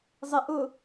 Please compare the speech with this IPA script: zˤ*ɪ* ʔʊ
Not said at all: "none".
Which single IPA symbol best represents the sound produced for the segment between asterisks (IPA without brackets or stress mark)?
ɪ